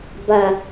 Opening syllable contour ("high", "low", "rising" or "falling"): low